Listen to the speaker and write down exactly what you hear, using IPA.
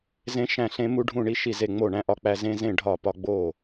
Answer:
z ẽ˧ ʃ æ̃˧˩ ɬ ẽ˧ m u˧ ɖʱ ũ˧˩ ɳ i˧ ʃ i˧˩ z e˧˩ ŋ͡m o˧˩ ɳ æ̃˧ ʔ ɒ˧ k͡p æ˧ z ẽ˧ z ẽ˧˩ ɖʱ ɒ˧˩ p ɒ˧ ɡ͡b o˧˩

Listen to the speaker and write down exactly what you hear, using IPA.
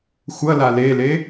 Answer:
xʷ ɐ l a l e l e

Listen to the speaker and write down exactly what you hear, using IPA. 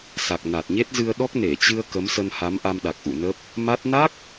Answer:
s a˨˩ k̚ n a˨˩ t̚ ɲ e˦˥ t̚ z ɨ˧ ə̯ ɗ ɔ˦˥ k̚ n e˧˩ t͡ɕ ɨ˧ ə̯ k ə˨˦ m s ə˧ n h a˨˦ m ʔ a˧ m ɗ a˨˩ k̚ ʔ ṵ˧˨ n ə˦˥ p̚ | m a˦˥ t̚ n a˦˥ k̚

